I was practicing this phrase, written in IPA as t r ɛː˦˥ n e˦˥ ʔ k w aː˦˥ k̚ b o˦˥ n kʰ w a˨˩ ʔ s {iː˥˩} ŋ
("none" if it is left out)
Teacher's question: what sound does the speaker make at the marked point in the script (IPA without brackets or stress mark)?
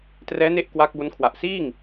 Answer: iː˥˩